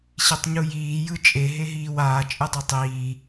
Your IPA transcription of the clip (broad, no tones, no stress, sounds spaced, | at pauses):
ɕ i tˤ ɲ u j iː j ɯ t͡ʃʼ e ɦ e ɦ iː w aː t͡ʃʼ ɯ dˤ ɛ tˤ iː